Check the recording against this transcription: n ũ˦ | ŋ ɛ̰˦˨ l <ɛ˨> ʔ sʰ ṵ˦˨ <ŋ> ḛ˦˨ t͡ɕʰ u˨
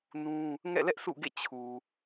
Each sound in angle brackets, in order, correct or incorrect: incorrect, incorrect

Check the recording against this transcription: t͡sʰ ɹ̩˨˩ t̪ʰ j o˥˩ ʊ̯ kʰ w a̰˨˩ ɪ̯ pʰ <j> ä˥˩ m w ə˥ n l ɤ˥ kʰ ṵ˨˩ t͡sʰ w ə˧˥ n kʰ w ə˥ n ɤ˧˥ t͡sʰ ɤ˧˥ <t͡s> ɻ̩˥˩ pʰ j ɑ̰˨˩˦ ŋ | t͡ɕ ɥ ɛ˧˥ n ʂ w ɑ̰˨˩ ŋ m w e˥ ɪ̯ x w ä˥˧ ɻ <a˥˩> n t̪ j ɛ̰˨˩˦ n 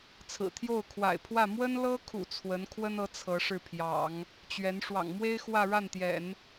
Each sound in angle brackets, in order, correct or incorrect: incorrect, incorrect, correct

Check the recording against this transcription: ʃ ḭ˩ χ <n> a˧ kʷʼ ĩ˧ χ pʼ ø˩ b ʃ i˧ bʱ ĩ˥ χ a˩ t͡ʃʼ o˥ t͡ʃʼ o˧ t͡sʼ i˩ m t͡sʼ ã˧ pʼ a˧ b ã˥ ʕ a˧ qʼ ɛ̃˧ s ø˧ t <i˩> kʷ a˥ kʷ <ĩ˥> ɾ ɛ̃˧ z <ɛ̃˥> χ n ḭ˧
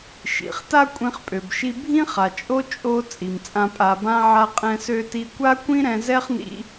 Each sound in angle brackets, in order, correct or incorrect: incorrect, incorrect, correct, incorrect

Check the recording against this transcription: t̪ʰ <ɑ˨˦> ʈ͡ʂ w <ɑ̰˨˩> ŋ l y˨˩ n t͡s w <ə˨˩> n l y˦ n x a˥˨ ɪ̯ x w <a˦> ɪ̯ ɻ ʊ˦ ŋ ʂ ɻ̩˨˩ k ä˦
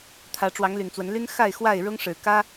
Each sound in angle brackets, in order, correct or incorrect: incorrect, incorrect, incorrect, incorrect

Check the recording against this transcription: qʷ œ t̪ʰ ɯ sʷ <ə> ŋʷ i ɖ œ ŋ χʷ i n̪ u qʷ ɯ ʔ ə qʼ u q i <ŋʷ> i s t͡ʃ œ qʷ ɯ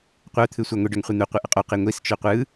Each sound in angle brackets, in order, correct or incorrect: incorrect, correct

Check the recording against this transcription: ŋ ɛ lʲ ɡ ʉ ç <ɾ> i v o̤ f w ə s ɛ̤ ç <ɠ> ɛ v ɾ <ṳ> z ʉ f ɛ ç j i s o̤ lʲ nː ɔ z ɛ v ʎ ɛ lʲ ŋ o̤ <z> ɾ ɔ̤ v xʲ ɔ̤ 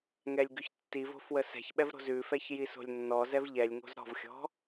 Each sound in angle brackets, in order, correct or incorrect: incorrect, incorrect, incorrect, correct

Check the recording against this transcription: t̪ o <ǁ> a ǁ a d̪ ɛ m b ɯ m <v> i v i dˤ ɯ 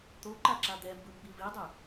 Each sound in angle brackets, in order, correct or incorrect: incorrect, incorrect

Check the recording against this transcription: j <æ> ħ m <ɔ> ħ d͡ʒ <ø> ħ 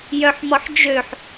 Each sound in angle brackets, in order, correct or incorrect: incorrect, correct, correct

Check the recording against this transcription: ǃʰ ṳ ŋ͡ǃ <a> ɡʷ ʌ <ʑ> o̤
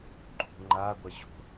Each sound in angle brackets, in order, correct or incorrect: correct, correct

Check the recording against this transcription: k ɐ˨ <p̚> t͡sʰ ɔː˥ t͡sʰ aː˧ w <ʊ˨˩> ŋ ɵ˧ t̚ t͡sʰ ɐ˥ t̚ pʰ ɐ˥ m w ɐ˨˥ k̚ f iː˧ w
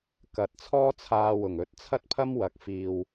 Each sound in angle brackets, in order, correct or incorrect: incorrect, correct

